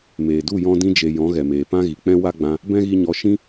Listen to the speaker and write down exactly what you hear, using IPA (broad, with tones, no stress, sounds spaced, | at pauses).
m eː˨ d u˦˨ j ɔ̃˧ d ĩ˧ d͡ʒ e˨ j ɔ̃˨˦ ɣ ɛ˨ m eː˨ p ã˦ ɣ i˨ k͡p ɛ̃˦ w a˦ ɡ͡b ã˧ | b ɛ̃˦ ɣ i˧ ɲ ɔ˨˦ ʃ ĩ˦